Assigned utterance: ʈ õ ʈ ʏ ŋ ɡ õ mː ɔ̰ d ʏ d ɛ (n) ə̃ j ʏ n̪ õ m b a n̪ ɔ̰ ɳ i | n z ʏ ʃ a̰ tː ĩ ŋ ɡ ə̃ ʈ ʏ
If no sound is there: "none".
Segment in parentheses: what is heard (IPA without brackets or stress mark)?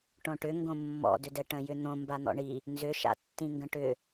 ʈ